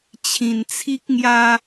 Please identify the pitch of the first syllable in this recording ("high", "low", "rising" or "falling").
low